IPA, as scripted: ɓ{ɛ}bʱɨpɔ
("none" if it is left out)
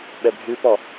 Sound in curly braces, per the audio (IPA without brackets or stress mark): ɛ